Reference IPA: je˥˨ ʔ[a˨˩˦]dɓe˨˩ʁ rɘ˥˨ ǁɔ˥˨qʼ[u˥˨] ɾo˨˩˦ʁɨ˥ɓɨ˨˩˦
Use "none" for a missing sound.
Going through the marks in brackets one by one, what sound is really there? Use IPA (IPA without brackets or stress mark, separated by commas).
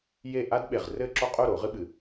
a˥, u˥˨